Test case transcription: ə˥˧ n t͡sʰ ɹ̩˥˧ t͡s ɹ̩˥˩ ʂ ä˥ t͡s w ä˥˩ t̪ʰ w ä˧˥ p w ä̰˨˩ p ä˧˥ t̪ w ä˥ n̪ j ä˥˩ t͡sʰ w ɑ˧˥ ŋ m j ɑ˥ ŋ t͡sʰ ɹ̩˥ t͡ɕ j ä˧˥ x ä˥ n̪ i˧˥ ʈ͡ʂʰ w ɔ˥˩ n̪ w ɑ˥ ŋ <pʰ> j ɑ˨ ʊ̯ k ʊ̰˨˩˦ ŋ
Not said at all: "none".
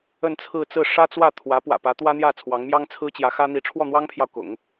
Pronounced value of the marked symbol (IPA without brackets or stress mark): pʰ